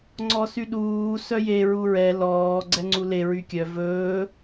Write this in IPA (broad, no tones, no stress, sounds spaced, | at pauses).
ŋ͡ǀ ɔ s y ɗ uː s œ j e ɹ u ɹ ɛ l ɔː ɡ͡ǀ ɛ ŋ͡ǀ u l e ɹ y kʲ œ v ɵː